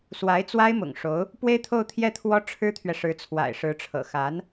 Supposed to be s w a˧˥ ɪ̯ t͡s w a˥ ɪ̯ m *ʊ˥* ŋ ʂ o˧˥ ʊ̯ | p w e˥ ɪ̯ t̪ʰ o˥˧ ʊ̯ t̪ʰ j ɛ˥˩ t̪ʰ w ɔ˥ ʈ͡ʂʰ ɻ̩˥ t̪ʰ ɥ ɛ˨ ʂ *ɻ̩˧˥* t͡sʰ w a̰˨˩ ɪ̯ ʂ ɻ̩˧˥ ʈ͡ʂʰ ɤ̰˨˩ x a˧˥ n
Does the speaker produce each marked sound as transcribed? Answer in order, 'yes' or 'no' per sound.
no, yes

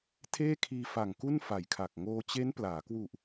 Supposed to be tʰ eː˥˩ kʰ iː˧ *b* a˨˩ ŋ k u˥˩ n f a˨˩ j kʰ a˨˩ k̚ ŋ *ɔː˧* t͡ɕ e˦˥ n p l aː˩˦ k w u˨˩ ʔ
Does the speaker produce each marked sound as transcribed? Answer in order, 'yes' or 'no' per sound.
no, no

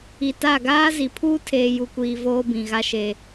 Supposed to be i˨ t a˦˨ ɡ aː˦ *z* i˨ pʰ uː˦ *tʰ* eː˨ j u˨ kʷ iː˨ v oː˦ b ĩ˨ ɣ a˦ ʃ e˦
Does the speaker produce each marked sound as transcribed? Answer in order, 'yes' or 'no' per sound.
yes, yes

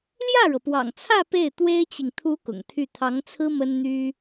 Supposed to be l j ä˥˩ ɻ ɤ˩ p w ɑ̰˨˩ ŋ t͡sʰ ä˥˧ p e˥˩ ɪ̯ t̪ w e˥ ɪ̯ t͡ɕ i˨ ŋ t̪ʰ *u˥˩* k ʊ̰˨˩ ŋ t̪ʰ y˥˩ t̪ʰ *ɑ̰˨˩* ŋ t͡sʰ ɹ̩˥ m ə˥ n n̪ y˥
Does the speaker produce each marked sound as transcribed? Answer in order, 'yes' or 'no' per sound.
no, no

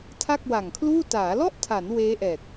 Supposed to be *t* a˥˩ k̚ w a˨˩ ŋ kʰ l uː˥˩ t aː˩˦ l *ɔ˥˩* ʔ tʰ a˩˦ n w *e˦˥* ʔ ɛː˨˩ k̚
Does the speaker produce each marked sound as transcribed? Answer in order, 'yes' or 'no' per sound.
no, yes, no

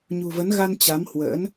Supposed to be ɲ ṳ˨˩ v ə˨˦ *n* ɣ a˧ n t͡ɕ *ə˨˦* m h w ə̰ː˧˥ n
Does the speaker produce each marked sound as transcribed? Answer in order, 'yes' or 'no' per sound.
yes, no

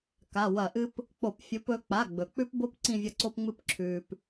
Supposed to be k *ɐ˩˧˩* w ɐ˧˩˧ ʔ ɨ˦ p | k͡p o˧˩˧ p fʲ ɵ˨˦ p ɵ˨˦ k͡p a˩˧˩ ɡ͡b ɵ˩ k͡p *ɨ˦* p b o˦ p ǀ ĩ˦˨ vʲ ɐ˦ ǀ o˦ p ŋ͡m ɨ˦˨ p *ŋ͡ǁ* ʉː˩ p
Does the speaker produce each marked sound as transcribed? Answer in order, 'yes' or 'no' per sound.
no, no, no

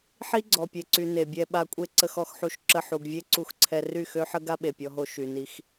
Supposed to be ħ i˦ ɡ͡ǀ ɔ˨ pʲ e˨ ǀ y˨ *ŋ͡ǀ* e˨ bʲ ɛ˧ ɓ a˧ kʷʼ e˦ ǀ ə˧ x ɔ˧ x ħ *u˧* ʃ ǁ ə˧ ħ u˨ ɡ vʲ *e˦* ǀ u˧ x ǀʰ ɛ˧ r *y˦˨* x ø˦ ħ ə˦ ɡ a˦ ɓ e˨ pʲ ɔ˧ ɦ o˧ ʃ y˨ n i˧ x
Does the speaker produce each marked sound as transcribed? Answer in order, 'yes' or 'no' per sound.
no, yes, yes, yes

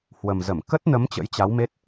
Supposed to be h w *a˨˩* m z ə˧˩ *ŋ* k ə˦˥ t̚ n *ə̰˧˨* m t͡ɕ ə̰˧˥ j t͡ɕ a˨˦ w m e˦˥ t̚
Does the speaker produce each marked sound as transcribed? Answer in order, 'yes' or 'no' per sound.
no, no, no

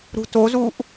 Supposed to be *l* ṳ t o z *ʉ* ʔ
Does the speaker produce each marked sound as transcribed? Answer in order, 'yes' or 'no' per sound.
no, no

